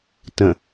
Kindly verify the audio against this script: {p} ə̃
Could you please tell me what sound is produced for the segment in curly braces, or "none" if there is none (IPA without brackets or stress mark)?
t